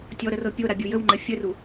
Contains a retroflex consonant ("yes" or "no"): no